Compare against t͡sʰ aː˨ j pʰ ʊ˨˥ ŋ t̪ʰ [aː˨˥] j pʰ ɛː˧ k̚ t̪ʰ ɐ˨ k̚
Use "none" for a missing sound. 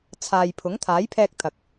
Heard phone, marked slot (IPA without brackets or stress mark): aː˨˥